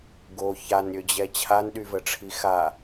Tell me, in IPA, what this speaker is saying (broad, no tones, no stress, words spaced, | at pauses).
ɡo çanɾʲød͡ʑɛ t͡ɕʰanɗyvəʈ͡ʂʰi xa